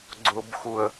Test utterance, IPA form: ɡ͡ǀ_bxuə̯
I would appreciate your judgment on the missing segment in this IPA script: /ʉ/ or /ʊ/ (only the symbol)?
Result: ʊ